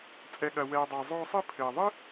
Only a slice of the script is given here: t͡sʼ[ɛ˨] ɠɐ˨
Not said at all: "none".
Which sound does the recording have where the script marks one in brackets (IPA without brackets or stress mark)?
ɛ˨